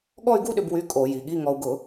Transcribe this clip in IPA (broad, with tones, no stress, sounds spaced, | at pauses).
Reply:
ɠ ɔ˥˧ y̯ ɡ u˥˧ ɗ ʏ˧ b w y˧˥˧ kʼ o˧˩˧ j i˩˧ ɠ i˧˥˧ ŋ ɔ˧ u̯ ɡ ʊ˧˩˧